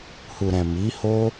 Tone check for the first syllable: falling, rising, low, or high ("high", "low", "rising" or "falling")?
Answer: low